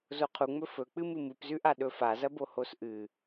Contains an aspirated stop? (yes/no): yes